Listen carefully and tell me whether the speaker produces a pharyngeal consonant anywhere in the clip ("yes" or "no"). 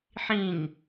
yes